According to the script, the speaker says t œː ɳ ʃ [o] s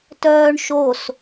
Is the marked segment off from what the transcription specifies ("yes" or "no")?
no